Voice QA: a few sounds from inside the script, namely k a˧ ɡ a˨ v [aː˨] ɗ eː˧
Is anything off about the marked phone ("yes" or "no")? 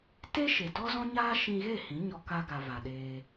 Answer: yes